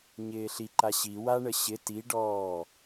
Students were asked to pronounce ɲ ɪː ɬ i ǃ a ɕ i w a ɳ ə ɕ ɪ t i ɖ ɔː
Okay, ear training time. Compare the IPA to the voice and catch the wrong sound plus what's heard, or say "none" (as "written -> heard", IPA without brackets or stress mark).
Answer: none